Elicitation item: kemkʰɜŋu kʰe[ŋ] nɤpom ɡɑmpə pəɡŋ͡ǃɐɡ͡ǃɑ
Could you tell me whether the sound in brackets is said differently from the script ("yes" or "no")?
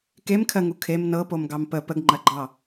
yes